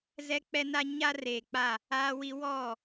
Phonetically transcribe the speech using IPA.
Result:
zɛ˦k͡pɛ˦na˦ ɲa˦ reː˨k͡pa˦˨ | aː˦wi˦ wɔ˦˨

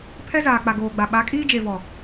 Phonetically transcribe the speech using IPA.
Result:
pʰɛ˦zaː˨k͡pa˨ ɡoː˨ɡ͡ba˨ ɓa˨˦kʼiː˦d͡ʒe˨vɔ˨

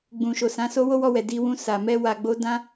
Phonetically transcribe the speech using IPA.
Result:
ɡ͡bũ˨ʃo˨sã˨˦so˦ wo˦wɔ˧wɛ˨ di˧wũ˧ sa˨ mɛ˧wa˨ɡ͡bo˨˦dã˦

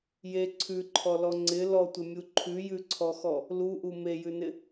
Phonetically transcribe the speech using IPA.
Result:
je ǀʰʉǃʰɔlɔ ŋ͡ǀɪ lɔtʷɪmʲu ǃʰʉjʉǀʰɔxɔ | luʔu mejʉnɪ

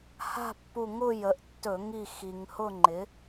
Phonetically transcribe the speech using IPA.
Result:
ha̤˥˧pːu˧˩ŋʊ˥˧ jə˩˥ʔtːɵ˧˩˧ ŋi˧˩ xi˩ŋhʊ˥˧ŋ͡ǃɪ˩˥

